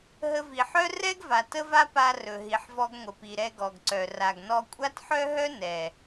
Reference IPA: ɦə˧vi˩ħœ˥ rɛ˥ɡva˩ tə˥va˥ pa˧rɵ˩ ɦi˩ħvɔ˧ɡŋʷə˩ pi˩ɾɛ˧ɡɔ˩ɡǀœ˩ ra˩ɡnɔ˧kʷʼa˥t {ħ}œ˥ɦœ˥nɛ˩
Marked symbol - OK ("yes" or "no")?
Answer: yes